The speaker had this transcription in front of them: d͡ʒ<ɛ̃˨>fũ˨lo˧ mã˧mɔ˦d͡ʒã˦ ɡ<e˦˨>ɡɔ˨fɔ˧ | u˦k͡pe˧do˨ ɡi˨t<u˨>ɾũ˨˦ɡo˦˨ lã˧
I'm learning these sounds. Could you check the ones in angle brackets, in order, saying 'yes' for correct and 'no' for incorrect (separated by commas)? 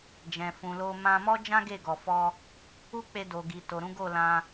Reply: yes, yes, no